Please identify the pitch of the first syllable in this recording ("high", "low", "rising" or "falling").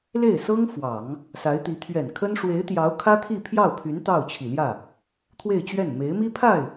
falling